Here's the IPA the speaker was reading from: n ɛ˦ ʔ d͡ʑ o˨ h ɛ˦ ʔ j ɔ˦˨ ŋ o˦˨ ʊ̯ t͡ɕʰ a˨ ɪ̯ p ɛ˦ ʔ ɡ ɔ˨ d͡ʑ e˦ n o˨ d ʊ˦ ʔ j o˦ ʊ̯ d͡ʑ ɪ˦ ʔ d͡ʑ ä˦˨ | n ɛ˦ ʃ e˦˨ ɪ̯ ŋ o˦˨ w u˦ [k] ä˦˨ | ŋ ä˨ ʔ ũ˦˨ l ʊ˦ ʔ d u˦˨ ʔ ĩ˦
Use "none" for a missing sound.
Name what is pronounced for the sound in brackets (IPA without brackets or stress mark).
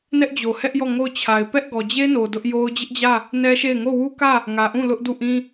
k